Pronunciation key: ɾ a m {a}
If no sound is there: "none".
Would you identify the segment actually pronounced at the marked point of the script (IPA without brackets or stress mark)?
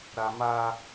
a